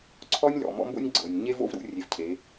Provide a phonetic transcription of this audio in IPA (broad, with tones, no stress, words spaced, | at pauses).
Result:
ǀʰɔ˧nʲlɔ̰˩ mɔ̰˧˥mbo̰˥nʲ ɡ͡ǀɤ˩nʲ ɲe˥vo̰˥vɾṵ˧ rʲe˩˧vcʰe˩˧